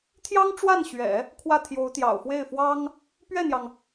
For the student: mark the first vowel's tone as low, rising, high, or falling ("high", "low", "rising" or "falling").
high